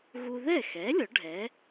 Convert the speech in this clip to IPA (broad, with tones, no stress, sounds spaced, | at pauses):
ɣ u˧ ð ɛ˥˩ x ɛ˩˥ lʲ ɔ˩˥ ɖʱ ɛ˩˥